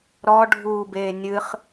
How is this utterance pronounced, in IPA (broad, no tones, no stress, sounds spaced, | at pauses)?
ɾ ɔ ɖʱ uː b eː nʲ ɨ χ